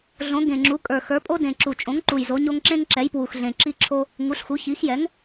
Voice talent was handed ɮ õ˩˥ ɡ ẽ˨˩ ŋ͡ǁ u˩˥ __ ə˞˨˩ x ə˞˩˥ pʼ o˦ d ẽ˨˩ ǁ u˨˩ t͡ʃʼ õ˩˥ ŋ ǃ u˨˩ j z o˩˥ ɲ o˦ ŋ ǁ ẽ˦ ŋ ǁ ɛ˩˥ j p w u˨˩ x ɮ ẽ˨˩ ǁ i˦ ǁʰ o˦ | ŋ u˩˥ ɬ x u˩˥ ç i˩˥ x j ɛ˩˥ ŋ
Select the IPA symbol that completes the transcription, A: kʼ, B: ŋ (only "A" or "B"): A